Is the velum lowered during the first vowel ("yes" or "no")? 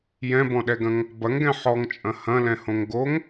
yes